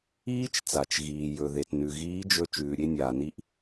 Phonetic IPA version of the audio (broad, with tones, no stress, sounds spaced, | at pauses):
iː˥ t͡ʃ t͡s a˩ t͡ʃ ɣ iː˩ j ɵ˩ ð e˩ t n ʉ˩ ɣ iː˧˥ d͡ʒ ɵ˧ t͡ʃ ʉː˩ ɾʲ e˧ nʲ aː˩ n i˧˥ ʔ